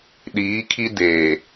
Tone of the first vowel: rising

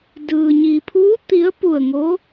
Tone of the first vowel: low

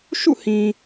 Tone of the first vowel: falling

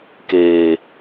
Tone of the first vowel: low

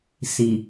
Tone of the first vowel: low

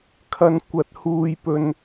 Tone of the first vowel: high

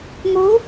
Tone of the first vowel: rising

